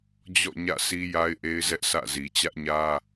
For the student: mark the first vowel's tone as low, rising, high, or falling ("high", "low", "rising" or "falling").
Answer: falling